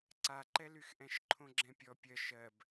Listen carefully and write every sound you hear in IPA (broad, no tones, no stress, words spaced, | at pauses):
ǀaǃɛlyxʔɛ̃ʃ ǃʰõɡ͡ǁɛ̃pʲɔ pʲɜ ʃɜb